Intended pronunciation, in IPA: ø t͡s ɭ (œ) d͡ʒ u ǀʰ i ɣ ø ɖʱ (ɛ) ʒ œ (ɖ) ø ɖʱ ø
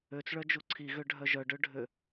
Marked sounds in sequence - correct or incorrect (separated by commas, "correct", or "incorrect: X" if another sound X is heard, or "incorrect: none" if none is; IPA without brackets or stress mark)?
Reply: correct, incorrect: œ, correct